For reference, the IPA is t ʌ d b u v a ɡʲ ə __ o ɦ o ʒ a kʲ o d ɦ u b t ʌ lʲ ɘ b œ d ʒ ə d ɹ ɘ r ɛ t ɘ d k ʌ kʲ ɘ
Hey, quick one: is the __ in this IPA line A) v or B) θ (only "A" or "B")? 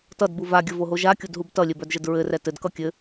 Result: A